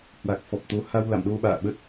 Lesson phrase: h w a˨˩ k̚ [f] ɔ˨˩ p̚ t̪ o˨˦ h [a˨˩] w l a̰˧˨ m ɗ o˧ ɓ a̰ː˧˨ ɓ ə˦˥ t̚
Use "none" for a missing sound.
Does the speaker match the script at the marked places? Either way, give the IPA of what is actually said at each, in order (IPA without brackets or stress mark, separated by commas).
f, a˧